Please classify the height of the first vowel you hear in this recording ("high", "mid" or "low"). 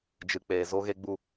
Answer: high